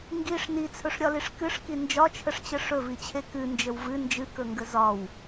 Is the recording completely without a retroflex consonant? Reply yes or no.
no